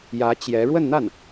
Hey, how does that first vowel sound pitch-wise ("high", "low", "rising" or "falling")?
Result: rising